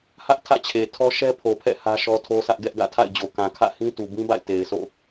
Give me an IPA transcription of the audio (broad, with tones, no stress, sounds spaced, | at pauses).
h ä˦ ʔ tʰ ä̰˦˨ t͡ɕʰ e˨ tʰ ɔ˦ ʃ ɛ˦ pʰ o˨ pʰ ɛ̰˦˨ h ä˦ ʃ ɔ˦ tʰ o˦ s ä˦ ʔ ɡ ɛ˦ ʔ ɡ ä̰˦˨ tʰ a̰˦˨ ɪ̯ d͡ʑ o˨ k ã˨ kʰ ä̰˦˨ h ĩ˦ t u˨ b ĩ˦ b a̰˦˨ ɪ̯ t e˨ ɪ̯ sʰ o̰˦˨